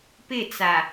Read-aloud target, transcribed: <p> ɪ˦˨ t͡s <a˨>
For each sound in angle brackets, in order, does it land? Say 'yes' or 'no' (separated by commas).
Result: yes, yes